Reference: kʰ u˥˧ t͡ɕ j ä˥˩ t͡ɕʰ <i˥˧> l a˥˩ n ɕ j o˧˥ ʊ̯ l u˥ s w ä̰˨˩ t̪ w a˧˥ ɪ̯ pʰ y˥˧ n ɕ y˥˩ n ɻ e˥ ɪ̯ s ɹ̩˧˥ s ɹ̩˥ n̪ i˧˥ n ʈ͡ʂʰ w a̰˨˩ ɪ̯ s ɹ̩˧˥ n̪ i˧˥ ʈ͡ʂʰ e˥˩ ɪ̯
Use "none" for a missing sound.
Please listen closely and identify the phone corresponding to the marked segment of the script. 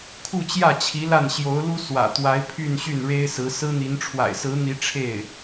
i˧˥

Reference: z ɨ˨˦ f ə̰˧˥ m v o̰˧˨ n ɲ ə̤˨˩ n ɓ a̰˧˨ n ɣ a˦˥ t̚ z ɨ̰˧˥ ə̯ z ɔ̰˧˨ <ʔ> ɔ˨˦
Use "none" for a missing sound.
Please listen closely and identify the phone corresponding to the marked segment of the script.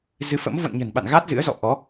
ʔ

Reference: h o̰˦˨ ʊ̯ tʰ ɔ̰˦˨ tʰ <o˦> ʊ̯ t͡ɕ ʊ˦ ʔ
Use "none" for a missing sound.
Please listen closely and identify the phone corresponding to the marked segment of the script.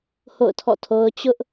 o˦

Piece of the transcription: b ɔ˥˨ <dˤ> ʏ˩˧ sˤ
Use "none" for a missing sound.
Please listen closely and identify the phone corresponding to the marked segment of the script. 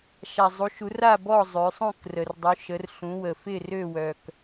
zˤ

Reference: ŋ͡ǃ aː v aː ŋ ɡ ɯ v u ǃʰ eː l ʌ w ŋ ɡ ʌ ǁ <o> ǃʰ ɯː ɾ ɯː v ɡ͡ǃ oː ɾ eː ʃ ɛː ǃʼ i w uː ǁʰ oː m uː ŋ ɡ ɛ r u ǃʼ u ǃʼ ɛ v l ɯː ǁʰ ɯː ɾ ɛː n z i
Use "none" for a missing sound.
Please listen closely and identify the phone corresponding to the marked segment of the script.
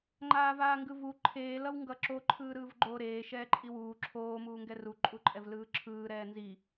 o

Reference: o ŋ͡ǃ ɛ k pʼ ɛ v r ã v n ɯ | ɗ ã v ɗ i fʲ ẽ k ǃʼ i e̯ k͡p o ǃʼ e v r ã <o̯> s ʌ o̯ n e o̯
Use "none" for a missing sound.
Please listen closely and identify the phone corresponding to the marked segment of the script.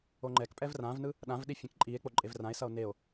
e̯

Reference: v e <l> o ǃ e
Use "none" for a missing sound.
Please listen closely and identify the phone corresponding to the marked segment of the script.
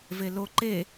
l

